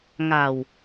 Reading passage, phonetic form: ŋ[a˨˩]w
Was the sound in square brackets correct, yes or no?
yes